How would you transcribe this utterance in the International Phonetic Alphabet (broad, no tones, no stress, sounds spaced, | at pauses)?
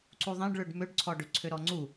ǀ u ðˤ ẽ ɖ ɭ ø ɖ m ø ɖ ǀʰ ɔ ɖ ø ǀʰ ø ɾ ɔ ŋ͡ǀ u